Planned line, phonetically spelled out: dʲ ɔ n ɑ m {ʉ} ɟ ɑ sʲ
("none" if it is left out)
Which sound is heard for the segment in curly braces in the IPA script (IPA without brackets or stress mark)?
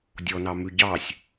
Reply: ʉ